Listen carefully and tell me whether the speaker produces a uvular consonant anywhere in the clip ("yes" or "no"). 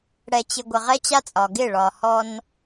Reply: yes